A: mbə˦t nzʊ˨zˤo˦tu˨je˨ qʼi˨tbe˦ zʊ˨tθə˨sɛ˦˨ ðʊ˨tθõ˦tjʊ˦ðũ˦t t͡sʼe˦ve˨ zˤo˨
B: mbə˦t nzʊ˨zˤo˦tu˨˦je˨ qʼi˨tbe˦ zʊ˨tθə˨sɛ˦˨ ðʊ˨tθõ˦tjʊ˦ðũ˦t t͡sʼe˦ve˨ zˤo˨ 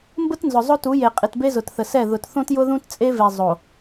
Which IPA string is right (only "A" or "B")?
B